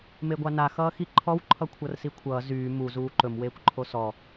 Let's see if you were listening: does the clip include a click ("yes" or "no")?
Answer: yes